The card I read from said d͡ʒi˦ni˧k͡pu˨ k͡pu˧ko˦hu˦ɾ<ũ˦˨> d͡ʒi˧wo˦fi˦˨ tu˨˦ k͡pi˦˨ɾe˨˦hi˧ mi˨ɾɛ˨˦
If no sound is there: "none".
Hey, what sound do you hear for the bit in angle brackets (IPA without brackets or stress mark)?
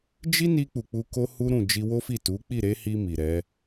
ũ˦˨